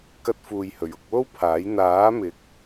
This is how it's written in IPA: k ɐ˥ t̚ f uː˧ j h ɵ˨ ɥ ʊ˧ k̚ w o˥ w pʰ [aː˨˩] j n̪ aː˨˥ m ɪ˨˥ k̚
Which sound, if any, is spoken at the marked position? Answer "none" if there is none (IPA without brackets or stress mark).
aː˨˥